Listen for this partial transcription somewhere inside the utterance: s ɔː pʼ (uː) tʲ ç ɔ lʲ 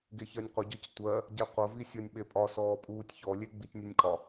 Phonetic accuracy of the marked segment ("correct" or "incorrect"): correct